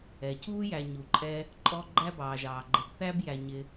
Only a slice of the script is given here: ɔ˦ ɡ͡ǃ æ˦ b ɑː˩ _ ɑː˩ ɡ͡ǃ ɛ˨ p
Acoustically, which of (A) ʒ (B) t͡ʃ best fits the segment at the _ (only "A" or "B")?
A